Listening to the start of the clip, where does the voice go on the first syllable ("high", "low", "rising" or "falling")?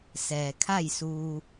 low